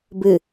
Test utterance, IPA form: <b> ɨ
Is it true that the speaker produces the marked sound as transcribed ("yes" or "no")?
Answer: yes